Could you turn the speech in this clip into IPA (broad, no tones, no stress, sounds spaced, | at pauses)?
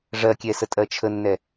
ʐ ɜ kʲ ɛ s ə tʼ ɜ t͡ʃʰ ə nː ɛ